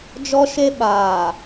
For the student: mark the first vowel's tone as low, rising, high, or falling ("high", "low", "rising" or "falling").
high